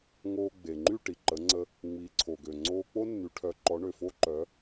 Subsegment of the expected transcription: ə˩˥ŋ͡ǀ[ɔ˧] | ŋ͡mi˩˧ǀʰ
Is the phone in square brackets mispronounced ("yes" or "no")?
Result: yes